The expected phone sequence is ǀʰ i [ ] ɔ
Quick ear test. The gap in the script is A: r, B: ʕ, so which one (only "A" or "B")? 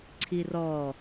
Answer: A